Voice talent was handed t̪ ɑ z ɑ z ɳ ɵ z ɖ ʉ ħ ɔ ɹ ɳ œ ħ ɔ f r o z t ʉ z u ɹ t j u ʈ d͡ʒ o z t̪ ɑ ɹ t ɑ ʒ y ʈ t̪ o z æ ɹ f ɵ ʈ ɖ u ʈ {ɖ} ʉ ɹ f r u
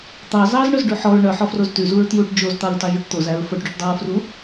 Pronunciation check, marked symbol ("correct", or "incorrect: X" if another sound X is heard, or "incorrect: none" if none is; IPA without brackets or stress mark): incorrect: dˤ